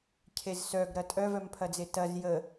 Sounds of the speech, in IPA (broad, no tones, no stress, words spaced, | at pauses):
cʰezsœɡ ɾɐtʼœ vœmpʰɐd͡zetɐz jə